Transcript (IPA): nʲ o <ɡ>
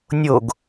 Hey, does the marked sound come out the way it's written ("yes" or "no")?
yes